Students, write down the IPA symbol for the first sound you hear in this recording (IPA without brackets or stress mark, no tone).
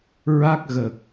ɹ